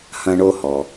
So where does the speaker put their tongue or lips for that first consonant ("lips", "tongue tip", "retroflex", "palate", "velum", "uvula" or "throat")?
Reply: throat